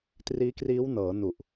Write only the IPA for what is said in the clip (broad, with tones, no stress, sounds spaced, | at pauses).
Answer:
t r iː˦˥ k r iː˦˥ w n ɤː˩˦ n u˨˩ ʔ